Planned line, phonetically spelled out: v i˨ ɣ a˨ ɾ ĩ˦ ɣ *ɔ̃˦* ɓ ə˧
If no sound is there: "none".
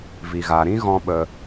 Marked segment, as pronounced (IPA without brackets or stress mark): ɔ̃˦